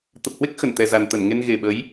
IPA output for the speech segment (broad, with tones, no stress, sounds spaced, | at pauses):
t̪ ə˨˩ p̚ h w e˦˥ k̚ x ə˧˩ n t̪ ɛ˨˩ z a˨˩ n t̪ ə˧˩ n ŋ e˧ n ɣ e˨˩ ɓ ə˨˦ j